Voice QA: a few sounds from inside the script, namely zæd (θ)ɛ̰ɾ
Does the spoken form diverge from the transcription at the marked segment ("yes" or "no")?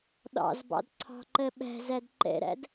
yes